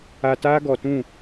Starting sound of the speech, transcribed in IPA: a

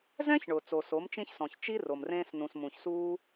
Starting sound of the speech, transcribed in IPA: z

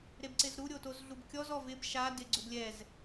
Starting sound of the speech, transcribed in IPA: ɾ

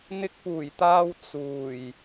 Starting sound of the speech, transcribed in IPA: n̪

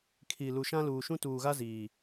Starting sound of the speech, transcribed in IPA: kʰ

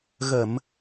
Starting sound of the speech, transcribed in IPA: ɣ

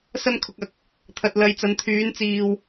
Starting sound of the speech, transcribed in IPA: s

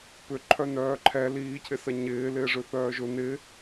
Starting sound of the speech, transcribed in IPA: p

